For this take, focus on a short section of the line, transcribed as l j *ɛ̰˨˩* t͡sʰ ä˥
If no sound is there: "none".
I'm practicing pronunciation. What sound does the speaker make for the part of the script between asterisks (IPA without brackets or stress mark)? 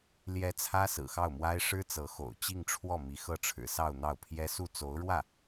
ɛ˧˥